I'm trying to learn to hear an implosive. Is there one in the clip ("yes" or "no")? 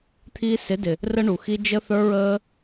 no